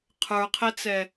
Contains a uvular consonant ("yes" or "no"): yes